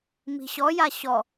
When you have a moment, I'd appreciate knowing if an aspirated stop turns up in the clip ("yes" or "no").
no